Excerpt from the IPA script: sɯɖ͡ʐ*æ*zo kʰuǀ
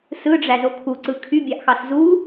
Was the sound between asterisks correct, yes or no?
yes